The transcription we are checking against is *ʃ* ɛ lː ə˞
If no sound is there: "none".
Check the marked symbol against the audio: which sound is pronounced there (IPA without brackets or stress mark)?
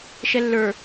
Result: ʃ